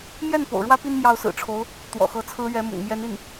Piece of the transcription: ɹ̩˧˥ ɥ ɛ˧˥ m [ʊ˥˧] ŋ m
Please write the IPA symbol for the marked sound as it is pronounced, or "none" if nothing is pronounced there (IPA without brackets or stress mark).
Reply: ʊ̰˨˩